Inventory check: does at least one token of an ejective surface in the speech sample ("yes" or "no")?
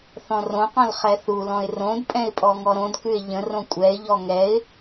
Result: yes